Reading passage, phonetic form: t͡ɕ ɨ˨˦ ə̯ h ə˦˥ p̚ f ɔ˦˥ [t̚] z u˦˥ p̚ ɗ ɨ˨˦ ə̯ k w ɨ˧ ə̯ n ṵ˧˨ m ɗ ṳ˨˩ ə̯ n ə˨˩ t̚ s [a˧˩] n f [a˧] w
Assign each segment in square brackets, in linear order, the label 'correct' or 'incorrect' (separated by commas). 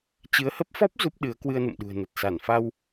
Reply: incorrect, correct, correct